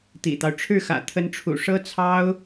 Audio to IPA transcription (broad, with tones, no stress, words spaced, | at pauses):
t̪ḭ˨˩t̪ɑ˦ʊ̯ ʈ͡ʂʰɻ̩˥˩xä̰˨˩ t̪ʰə˧˥nʈ͡ʂʰṵ˨˩ ʂɤ˥t͡sʰɑ˥ʊ̯